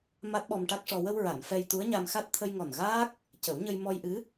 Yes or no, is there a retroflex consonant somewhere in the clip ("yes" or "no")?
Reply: yes